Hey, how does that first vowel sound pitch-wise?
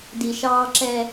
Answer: low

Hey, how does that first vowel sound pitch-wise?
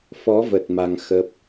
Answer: rising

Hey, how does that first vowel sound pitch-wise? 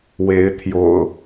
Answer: rising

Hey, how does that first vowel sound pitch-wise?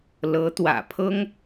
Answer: rising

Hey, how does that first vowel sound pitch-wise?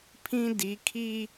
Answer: high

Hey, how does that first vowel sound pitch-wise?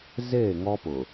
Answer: falling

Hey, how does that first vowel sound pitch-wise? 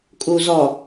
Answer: low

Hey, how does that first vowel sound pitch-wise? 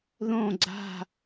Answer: falling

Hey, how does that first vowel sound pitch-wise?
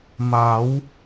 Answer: rising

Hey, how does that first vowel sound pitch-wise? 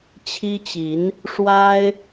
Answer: high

